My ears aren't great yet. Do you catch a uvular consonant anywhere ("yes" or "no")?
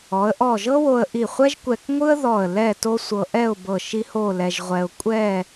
yes